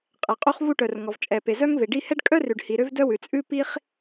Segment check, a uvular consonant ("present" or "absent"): present